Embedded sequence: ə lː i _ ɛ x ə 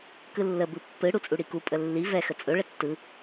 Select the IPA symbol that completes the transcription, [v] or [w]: v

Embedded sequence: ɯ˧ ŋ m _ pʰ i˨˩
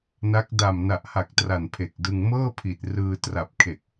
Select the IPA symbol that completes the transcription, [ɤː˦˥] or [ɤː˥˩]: ɤː˥˩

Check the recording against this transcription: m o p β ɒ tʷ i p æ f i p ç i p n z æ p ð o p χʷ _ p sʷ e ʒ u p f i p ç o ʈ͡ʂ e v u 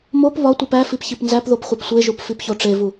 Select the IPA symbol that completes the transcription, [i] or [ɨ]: i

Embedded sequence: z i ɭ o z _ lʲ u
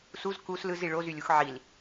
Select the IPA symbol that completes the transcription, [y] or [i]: y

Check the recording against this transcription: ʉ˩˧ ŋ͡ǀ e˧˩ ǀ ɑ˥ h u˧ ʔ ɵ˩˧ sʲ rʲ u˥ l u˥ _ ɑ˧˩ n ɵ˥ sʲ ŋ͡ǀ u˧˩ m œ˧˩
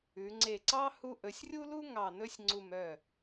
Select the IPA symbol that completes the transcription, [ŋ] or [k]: ŋ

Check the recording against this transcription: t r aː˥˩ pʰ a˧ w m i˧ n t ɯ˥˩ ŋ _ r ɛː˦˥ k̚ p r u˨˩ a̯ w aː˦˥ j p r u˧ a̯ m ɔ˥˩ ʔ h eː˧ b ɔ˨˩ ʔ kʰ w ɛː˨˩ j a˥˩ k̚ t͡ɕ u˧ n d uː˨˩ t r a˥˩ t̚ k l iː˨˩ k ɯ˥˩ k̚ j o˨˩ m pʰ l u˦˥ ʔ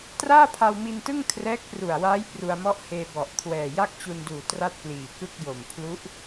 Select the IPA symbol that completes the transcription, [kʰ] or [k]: kʰ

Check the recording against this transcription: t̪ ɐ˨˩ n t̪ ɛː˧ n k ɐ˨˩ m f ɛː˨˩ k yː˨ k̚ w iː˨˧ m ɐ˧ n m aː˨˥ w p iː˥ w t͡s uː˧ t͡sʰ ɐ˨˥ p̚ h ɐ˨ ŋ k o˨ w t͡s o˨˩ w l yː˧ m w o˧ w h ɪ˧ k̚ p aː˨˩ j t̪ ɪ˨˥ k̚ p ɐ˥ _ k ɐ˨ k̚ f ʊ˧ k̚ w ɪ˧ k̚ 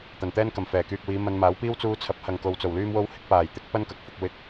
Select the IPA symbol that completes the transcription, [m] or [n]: n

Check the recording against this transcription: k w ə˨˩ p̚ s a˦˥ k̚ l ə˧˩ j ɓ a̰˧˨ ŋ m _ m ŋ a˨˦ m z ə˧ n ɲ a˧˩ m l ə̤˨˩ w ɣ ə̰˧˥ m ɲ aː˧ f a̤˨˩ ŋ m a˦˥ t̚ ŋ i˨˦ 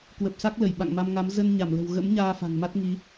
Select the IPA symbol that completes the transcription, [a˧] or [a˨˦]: a˧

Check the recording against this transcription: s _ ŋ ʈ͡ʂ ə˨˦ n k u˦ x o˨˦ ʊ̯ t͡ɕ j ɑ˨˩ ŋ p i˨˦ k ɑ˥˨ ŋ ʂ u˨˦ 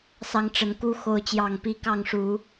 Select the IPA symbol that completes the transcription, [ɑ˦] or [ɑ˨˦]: ɑ˦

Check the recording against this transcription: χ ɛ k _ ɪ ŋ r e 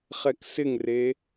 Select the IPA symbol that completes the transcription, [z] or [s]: s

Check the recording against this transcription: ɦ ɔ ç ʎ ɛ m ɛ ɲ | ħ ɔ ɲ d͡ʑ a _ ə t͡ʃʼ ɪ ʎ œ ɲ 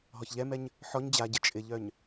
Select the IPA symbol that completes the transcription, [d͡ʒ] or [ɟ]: ɟ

